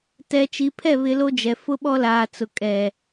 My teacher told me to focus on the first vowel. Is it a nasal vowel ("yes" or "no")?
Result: no